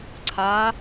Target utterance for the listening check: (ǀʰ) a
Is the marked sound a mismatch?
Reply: no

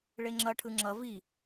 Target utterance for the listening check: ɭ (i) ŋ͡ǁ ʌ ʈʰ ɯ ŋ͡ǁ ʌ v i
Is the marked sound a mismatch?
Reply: yes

